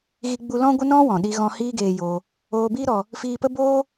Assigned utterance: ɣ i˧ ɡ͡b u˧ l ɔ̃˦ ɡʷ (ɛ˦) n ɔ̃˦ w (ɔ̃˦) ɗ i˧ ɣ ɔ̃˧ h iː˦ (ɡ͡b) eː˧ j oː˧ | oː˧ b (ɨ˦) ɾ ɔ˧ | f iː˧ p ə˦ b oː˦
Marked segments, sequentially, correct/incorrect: incorrect, incorrect, incorrect, incorrect

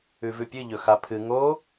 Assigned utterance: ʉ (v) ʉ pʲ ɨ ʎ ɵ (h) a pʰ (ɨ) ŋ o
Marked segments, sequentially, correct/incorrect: correct, incorrect, correct

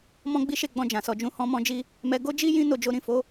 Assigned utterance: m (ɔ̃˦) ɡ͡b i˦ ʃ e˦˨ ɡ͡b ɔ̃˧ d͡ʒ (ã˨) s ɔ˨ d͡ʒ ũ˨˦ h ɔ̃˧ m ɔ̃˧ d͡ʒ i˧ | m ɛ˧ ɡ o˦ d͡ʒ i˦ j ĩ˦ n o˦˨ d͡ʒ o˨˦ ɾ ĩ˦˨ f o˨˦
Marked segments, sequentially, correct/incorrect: correct, correct

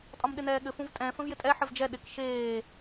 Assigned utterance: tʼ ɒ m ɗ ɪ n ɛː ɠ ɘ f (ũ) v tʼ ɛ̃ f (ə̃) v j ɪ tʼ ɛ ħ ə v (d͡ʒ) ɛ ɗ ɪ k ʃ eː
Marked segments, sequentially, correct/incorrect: correct, correct, correct

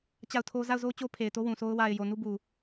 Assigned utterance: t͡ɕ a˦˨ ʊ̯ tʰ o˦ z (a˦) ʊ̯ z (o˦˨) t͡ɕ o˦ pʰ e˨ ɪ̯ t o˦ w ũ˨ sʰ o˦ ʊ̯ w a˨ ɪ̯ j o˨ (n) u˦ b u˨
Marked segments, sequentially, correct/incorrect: incorrect, incorrect, correct

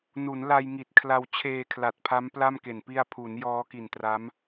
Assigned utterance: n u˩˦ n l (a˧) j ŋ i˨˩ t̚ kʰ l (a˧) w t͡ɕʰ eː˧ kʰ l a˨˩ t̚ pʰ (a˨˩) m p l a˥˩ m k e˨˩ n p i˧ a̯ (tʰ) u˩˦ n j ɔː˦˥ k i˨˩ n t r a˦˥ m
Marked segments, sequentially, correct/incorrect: correct, correct, incorrect, incorrect

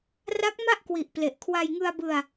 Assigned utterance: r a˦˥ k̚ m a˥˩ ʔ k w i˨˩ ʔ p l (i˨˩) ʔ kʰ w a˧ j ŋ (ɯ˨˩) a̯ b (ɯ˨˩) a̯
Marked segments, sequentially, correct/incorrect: incorrect, incorrect, incorrect

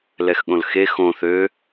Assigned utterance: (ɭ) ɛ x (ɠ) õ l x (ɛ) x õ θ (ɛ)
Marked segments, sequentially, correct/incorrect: incorrect, correct, incorrect, incorrect

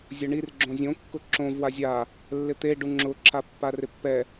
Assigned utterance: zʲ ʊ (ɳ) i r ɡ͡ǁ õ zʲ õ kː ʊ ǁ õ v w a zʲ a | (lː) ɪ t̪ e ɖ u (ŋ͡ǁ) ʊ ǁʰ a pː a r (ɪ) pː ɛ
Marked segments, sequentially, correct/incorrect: correct, correct, correct, correct

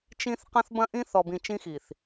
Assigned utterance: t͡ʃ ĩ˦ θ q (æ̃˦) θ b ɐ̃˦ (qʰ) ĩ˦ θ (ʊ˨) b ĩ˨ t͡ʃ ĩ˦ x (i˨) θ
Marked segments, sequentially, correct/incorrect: incorrect, incorrect, incorrect, correct

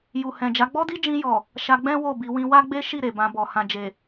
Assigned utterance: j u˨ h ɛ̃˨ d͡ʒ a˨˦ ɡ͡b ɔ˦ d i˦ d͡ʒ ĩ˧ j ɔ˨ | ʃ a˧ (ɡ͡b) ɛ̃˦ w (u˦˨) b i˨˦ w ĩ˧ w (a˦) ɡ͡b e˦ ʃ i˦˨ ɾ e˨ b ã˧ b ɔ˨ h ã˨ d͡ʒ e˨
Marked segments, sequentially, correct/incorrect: correct, incorrect, correct

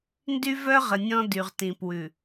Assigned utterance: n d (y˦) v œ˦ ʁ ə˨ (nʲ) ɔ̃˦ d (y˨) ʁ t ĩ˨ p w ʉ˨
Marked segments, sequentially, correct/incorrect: correct, correct, correct

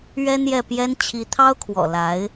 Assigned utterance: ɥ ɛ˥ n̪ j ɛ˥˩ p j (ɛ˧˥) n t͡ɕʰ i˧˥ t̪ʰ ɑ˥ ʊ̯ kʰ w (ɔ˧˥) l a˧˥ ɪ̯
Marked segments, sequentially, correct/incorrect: incorrect, incorrect

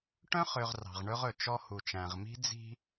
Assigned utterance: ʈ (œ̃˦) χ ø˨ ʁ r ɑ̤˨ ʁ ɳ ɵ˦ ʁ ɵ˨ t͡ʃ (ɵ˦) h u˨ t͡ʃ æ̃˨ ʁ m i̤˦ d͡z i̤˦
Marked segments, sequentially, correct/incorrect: correct, incorrect

